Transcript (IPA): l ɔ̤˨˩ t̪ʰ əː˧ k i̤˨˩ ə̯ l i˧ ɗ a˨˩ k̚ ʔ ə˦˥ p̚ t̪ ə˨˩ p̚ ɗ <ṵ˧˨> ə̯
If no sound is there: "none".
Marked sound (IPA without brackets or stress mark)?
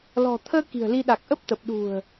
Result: ṳ˨˩